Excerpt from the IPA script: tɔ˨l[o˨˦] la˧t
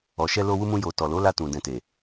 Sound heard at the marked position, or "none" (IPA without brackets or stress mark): o˨˦